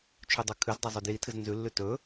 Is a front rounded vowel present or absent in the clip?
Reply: absent